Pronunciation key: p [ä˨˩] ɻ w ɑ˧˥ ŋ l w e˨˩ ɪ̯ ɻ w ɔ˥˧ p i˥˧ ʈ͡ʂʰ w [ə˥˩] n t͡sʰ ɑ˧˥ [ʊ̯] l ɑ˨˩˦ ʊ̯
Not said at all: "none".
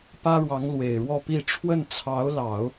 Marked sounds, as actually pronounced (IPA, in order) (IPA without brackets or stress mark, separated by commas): ä˥, ə˥˩, ʊ̯